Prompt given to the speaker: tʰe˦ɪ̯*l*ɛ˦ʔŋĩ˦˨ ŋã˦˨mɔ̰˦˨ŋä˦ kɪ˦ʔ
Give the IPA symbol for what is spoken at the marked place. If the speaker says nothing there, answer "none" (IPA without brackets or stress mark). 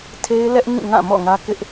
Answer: l